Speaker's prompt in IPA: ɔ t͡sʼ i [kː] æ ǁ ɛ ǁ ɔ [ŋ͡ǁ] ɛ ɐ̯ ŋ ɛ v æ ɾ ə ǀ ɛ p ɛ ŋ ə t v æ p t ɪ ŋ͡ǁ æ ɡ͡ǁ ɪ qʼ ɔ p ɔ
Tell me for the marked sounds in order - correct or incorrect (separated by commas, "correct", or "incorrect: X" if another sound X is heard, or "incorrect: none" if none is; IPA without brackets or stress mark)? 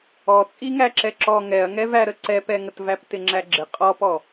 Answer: incorrect: ŋ, incorrect: ŋ